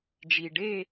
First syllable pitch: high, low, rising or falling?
low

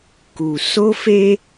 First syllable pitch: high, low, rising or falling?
low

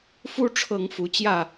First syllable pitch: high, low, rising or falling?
high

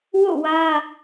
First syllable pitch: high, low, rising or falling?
falling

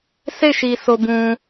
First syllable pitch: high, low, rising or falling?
falling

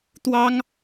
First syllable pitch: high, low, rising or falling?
high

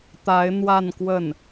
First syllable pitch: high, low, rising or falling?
rising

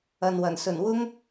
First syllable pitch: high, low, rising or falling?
low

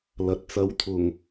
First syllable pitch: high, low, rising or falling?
low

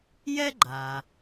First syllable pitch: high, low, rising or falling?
high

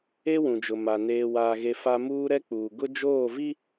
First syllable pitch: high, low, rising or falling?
high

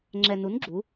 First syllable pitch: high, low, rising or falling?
low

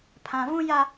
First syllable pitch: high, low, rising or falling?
low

